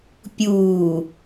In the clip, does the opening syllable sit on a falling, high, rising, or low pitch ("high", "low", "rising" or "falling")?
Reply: low